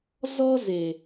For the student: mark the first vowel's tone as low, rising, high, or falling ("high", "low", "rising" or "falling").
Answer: high